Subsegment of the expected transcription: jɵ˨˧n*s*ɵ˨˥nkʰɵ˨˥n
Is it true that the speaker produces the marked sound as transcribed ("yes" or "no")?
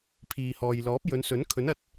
yes